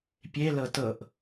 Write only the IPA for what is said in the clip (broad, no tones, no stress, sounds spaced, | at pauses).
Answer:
pʲ e l ɤ t ɤ ʔ